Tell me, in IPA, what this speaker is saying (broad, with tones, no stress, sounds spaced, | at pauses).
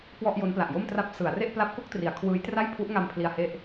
k w ɔ˥˩ ʔ j o˦˥ n p l a˨˩ ʔ j o˥˩ m t r a˦˥ p̚ s ɯ˩˦ a̯ r e˥˩ ʔ p l a˦˥ p̚ k o˥˩ k̚ t r i˩˦ a̯ kʰ w ɯː˦˥ j t r a˥˩ j pʰ u˦˥ ʔ ŋ a˧ m pʰ l i˧ a̯ h e˥˩ ʔ